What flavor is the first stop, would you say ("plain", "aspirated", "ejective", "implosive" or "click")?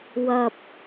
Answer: plain